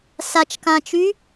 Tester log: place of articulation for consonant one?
alveolar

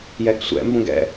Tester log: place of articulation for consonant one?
palatal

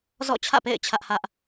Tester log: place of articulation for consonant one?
alveolar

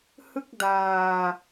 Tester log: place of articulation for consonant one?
glottal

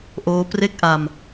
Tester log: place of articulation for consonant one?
glottal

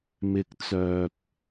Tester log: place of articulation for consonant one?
labial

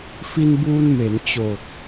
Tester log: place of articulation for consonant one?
labial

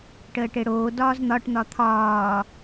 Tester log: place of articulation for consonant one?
retroflex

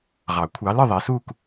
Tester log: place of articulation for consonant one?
uvular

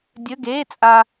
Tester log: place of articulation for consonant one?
alveolar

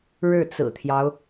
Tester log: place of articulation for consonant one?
retroflex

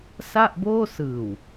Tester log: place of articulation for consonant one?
alveolar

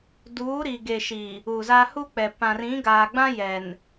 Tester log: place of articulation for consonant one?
alveolar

